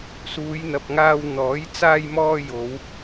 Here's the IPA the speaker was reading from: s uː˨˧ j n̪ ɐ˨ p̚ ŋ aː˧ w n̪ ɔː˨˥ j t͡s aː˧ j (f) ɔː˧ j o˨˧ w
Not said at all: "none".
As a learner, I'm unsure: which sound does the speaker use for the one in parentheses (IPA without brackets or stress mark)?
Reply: m